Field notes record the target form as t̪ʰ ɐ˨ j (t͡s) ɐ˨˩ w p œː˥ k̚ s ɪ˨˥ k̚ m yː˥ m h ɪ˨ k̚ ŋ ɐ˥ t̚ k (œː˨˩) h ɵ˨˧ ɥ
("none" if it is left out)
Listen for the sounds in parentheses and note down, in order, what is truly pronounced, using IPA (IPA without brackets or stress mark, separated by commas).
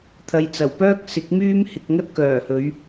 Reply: t͡s, œː˨˩